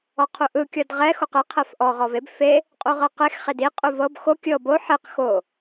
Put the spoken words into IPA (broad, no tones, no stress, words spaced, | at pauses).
ɔqʰuʔɯ kʲɔdʁɛ xoqe qʰɛfʔɔ ʁɔveb fe | qʼuʁɤqex χedi qʼuvɤb xo kʲɤ bo ħeq xo